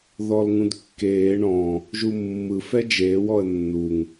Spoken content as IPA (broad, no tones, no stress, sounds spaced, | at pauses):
ð ɔ l ŋ ũ d kː eː ɳ ɔ̃ | ʒ u mː ɯ f ɛ d͡ʒ eː w ɔ ə̯ nː u ŋ